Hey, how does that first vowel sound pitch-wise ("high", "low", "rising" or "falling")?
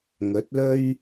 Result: rising